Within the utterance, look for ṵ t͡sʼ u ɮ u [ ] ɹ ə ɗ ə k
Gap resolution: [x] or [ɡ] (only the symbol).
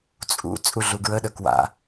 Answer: ɡ